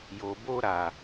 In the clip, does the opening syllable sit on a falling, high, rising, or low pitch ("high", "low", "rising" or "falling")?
low